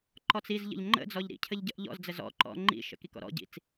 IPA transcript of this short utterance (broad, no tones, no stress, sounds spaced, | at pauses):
ǃ ɔ t͡s i z ʎ ə̰ ʎ ŋ͡ǃ ə̰ d͡z ɔ ʎ ɾ ḭ cʰ ə ʎ ɟ ə ʔ ʎ ɔ̰ z d͡z ə z ɔ̰ ǃ ɔ̰ ŋ͡ǃ ḭ ʃ ə̰ k i k ɔ̰ ɾ ɔ̰ ɟ ḭ t͡s